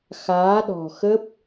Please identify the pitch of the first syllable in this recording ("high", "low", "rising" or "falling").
rising